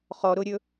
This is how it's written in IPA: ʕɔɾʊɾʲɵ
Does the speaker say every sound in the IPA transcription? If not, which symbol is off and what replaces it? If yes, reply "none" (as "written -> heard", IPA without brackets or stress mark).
ʕ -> χ